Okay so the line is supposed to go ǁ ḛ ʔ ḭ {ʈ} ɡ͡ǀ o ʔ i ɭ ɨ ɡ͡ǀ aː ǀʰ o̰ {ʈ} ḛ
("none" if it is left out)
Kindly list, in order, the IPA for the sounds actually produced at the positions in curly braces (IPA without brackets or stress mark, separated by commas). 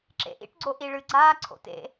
ʈ, t